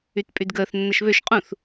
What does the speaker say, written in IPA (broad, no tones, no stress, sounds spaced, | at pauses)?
y t pʼ y d ɡ əː θ nː ɐ ʃ β ø ʃ qʼ ũ θ